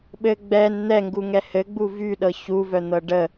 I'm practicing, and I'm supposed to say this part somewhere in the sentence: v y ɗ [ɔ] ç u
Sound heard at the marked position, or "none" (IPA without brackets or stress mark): ɤ